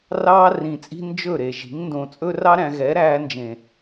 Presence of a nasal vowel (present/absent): present